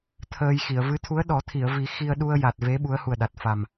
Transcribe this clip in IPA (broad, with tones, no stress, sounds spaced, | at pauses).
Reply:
t̪ʰ əː˧ j x i˨˩˨ ə̯ v ɨ˧˥ t̪ʰ u˧˥ ə̯ ɗ ɔ˨˩˦ t̪ʰ i˨˩˨ ə̯ v i˨˩˦ x i˧ ə̯ ɗ u˧ ə̯ j a˨˩ t̚ v e˧˥ ɓ u˧˥ ə̯ h u˨˩ ə̯ ɗ a˨˩ t̚ f a˨˩ m